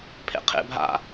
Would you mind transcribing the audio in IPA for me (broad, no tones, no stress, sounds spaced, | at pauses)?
pʰ ḛ qʰ ḛ bʱ a̰